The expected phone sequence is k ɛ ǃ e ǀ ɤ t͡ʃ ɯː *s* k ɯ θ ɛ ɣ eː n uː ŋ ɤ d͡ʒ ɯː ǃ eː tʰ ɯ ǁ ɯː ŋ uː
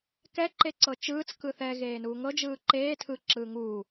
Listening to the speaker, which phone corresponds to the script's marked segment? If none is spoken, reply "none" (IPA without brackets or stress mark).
t͡s